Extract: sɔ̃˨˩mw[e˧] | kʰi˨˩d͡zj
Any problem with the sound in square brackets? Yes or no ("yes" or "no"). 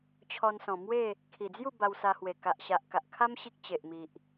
yes